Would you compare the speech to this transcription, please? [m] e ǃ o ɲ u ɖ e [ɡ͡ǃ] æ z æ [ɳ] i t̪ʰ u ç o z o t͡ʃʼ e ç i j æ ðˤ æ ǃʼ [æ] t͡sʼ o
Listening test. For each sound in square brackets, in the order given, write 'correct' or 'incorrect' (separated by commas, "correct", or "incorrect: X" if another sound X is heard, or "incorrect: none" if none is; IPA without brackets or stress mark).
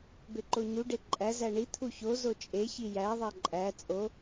incorrect: b, incorrect: ǃʼ, correct, correct